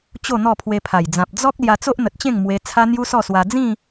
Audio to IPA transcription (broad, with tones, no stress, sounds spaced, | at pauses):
t͡ɕ o˥˧ n̪ ɔ˥˧ pʰ w e˧ pʰ a˨˩ j d͡z ã˨ p̚ d͡z ɔ˦ k̚ l j a˧ t͡s o˦ ʔ n̪ ə˨ t̚ t͡ɕ ẽ˥˧ ŋ m w e˧ t͡sʰ a˦ n̪ j u˦ s ɔ˥˧ s w a˧ d͡z ĩ˥˧